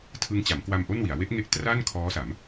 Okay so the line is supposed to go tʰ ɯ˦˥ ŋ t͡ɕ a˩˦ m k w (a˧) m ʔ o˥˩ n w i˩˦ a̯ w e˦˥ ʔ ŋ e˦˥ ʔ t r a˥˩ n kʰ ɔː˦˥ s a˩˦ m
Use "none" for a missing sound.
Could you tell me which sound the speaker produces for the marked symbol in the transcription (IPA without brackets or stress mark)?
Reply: a˧